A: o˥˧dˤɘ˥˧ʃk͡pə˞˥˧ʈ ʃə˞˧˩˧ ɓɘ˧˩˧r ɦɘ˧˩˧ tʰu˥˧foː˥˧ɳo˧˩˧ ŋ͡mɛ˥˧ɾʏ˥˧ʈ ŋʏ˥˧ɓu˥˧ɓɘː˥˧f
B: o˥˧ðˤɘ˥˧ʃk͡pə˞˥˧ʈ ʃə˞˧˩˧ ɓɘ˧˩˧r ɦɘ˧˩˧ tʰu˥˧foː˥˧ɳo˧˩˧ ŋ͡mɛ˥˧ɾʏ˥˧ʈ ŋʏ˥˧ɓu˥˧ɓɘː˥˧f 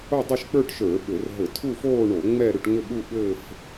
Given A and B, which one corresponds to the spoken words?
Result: A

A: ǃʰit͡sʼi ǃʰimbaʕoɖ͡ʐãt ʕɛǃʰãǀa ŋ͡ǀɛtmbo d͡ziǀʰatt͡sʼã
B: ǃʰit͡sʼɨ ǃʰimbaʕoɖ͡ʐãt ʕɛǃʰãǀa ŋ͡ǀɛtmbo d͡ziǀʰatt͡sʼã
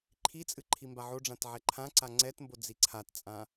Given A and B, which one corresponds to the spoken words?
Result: B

